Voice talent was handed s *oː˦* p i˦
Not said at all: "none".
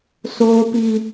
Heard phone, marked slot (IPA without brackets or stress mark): oː˦